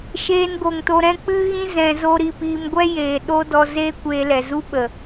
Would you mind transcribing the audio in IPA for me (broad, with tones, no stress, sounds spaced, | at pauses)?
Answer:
ʃ eː˧ n ɡ o˨ ŋ t o˧ ɾ ɛ̃˦ k͡p ɨ˦ ɣ ĩ˦ z ɛ̃˧ z o˦ ɾ i˦˨ p iː˧ m ɡʷ ɛ˦ j eː˨ ɗ o˦ d ɔ˧ z eː˦ kʷ eː˧ l ɛ˨ z u˦ ɓ ə˨